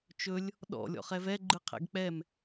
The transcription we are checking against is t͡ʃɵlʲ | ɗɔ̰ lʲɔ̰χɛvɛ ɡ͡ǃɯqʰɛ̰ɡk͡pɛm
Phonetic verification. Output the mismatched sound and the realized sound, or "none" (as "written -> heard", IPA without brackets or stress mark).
none